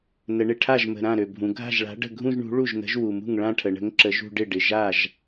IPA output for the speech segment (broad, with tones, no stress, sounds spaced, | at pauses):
n ə˩˧ ɳ ɪ˨˩ ʈʰ a˥˩ ʒ m ə̤˨˩ ɾ ã˥˩ ɾ ø˨˩ bʱ ũ˩˧ ɡʱ a̤˥˩ ʒ ɭ a̤˨˥ ɖ ə̤˥˩ ɡʱ ũ˥˧ ʒ ɳ ṳ˨˥ ɭ u˥˩ ʒ n ə̤˨˥ ʒ w u˨˩ m ṳ˥˩ ŋ ɭ ã˥˧ ʈʰ ə˩˧ ɳ ə̤˨˥ ŋ ǁ ə˨˥ ʒ ṳ˥˧ ɖ ɪ˥˩ ɖ ɪ˨˩ ʒ a˥˩ ʒ